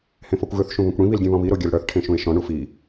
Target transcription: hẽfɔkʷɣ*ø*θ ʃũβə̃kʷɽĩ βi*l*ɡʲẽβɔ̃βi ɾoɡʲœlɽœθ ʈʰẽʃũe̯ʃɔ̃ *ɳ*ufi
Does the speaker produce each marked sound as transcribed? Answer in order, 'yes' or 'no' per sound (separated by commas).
yes, yes, yes